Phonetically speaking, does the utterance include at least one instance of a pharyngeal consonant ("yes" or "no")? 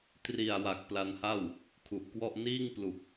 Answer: no